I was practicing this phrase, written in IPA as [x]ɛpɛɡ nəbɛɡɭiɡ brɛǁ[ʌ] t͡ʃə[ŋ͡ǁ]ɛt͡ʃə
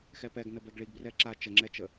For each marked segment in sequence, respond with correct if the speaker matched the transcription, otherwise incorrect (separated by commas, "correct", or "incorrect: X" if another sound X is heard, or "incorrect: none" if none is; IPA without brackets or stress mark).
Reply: correct, incorrect: a, correct